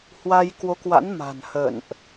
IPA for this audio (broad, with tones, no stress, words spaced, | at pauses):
hwa˧j kwo˨˦kwa̰˧˥n ma̤˨˩nhə̰˧˨nʔ